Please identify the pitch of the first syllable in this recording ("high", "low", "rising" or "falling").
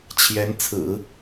rising